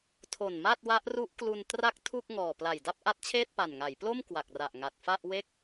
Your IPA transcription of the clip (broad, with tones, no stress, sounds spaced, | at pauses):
tʰ o˨˩ n m a˥˩ t̚ w a˦˥ ʔ r u˦˥ ʔ k l u˧ n t r a˥˩ k̚ tʰ u˥˩ k̚ ŋ ɔː˨˩ p l a˨˩ j d a˥˩ p̚ ʔ a˦˥ t̚ t͡ɕʰ eː˥˩ t̚ p a˨˩ n ŋ a˩˦ j p l o˥˩ m k w a˨˩ k̚ r a˨˩ ʔ ŋ a˨˩ t̚ f a˥˩ ʔ w e˥˩ k̚